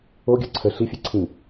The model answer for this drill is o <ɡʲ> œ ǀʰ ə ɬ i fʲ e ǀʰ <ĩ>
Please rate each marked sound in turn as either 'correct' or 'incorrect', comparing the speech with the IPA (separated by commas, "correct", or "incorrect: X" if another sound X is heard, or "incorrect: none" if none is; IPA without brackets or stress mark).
correct, correct